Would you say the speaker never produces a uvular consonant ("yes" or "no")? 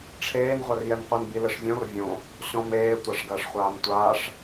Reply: no